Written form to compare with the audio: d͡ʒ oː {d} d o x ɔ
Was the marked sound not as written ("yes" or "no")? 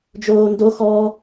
yes